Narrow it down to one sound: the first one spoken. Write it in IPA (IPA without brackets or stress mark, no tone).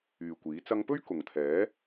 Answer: yː